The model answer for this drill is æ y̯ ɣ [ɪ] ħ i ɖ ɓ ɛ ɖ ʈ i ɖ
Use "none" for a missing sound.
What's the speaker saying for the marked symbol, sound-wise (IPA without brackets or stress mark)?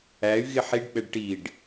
ɪ